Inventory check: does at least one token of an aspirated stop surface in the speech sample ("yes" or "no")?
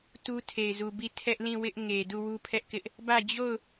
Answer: yes